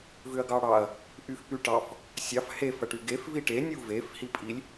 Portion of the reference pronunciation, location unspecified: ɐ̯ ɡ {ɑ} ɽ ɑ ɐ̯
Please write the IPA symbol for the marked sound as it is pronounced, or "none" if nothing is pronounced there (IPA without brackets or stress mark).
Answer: ɑ